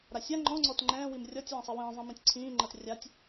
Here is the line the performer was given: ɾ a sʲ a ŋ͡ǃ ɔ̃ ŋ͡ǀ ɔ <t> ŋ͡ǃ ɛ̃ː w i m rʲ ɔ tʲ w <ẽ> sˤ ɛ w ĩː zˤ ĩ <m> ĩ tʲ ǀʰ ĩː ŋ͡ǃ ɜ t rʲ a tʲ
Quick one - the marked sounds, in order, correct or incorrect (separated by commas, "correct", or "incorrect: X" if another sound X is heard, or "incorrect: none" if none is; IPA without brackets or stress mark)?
correct, incorrect: ɛ̃, correct